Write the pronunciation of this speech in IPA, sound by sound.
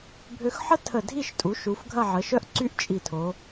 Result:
bʱ ø˧ x ħ ə˥ tʰ ə˧˩ dʱ i˥˧ ʃ tʼ u˩˧ ʃ u˩˧ f ɡʱ ɐ˥˧ ʕ ə˩˧ ʃ œ˥ ʔ ǀ y˥ ʔ t͡ʃʼ i˧˩ tʰ o˩˧

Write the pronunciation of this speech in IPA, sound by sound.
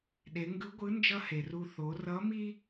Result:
ɗ e˩˧ ŋ ɡ ɯ˧˥ ɡʷ ɯ˧˥ n d͡ʒ ʌ˥ h e˩ r u˧ θ o˩˧ r ʌ˧˥ m i˥

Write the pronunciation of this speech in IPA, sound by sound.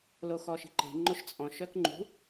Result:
l o x ɔ ʃ i̤ ǃ e̤ ŋ͡ǃ o ʃ t͡sʼ ɔ̃ ʃ œ k ŋ͡ǃ ṳ

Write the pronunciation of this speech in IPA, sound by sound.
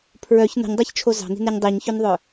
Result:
pʰ ɹ œ ç n o̤ ɲ dˤ ɑ ç t͡ʃʰ o z ɑ̤ n̪ i̤ n ɛ ɲ dˤ i ɲ ç ø n ðˤ œ

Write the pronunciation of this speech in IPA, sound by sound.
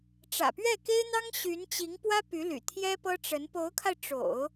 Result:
ʈ͡ʂ ä̰˨˩ p ɥ ɛ˥˩ k e˥ ɪ̯ n̪ ɑ˥ ŋ ɕ y˧˥ n t͡ɕ i˧˥ ŋ p w ä˥ p y˧˥ l y̰˨˩ t̪ʰ j ɛ˥ p ɤ˥ ʈ͡ʂ ə˧˥ n p o˧˥ ʊ̯ kʰ a˧ ɪ̯ ʈ͡ʂ o̰˨˩˦ ʊ̯

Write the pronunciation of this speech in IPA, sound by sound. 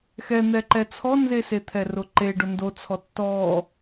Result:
x ɛ n̪ ɛ ǃ ɛ t͡sʰ ɔ n z e s e t̪ʰ ɛ r ʊ ǃ e ɖ ʊ n d o t͡sʰ ɔ tː ɔ

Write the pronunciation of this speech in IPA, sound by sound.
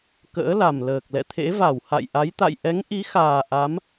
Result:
k ə̰ː˧˥ l a˨˩ m l əː˨˩ k̚ l ɛ̰˧˨ t̪ʰ ḛ˧˥ v a˧˩ w h a̰˧˨ j ʔ a˨˦ j t̪ a̰˧˨ j ʔ ɛ˨˦ ŋ ʔ i˨˦ x aː˨˩ ʔ a˨˦ m

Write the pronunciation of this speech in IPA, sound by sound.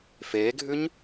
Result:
f eː ɡʱ ʉ ɲ

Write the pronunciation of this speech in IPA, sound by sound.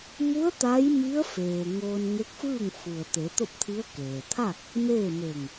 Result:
m u˧˥ ə̯ t̪ a˧˥ j m i˧˥ ə̯ f eː˩ ŋ oː˧ n ŋ e˧˥ k̚ f ɯː˥˨ ŋ f u˩ ə̯ t̪ e˩˧ t̪ o˥˨ p̚ t̪ʰ i˧˥ ə̯ k eː˩ t̪ʰ a˥˨ k̚ | m eː˥˨ m e˧˩ ŋ

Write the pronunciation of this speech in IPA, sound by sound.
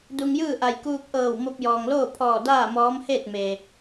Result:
d u˧ ŋ j ɯː˥˨ ʔ a˧˩ j k uː˧ k̚ ʔ ɤː˧˩ w m o˧ p̚ j ɔː˩ ŋ l oː˥˨ pʰ ɔː˧˩ d aː˥˨ m ɔː˧˥ m h eː˥˨ t̚ m eː˩

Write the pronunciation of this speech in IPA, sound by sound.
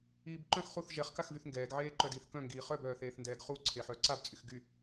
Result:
iː b ǃ œ̃ x χ u θ ʒ ɛ χ k a x v y θ ŋ ɡ ɛː ɡ ʕ eː ǃ œ d iː θ k œ̃ ŋ ɡ iː χ œ b œː θ eː θ n d ɛː ɡ χ u ǀʰ e ħ œː ǀ a b t͡sʼ y x ɡ y

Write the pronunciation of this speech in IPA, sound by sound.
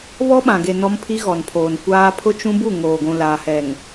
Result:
β ɔ˦ ɓ ã˨ ɡ e˨ n ɔ˦ m pʰ i˦ ɣ ɔ˨ n pʰ oː˨ n kʷ aː˦ pʰ ʊ˦ t͡ʃ ũ˦ b u˦˨ ŋ oː˨ ɡʷ ũ˨ l aː˨ h ɛ˨ ŋ

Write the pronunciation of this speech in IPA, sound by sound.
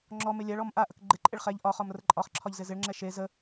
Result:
ŋ͡ǁ ɔ m e lʲ a ɭ ɔ m ʔ a ʔ ə k ɡ͡ǃ ɪ ǃʼ ɪ ɭ χ ɛ ʎ ʔ ɒ χ ɒ m r ə ǃʼ ɒ χ ǁʰ ɒ ʎ z ɪ z ɪ ɭ ŋ͡ǁ ɛ ʃ e z ə

